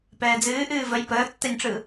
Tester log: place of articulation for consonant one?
labial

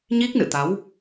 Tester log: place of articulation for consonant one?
palatal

